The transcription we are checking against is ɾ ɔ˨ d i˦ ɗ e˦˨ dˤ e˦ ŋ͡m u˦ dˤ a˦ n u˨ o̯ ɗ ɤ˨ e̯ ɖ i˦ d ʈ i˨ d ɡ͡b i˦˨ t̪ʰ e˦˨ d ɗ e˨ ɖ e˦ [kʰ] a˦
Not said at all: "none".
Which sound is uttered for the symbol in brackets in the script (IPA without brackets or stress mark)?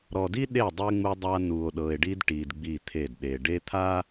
t̪ʰ